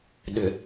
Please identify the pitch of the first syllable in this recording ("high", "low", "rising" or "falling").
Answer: low